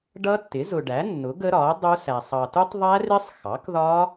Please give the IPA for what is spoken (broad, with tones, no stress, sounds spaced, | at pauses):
ɖ ʌ˦˥ tː ɪ˩˥ z ʊ˨ ɖ æ˩˥ nː ʊ˩˥ ɡ ə˦˥ ɾ ɒ˩˥ ɐ̯ dˤ u˦˥ s æ˨ sˤ ɑ˨ t u˦˥ tˤ ðˤ æ˦˥ r ɪ˦˥ sˤ x ɑ˩˥ k ð ɒ˦˥